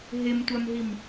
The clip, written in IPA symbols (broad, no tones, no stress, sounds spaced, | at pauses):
ɦ e m tʷ a m ɦ i m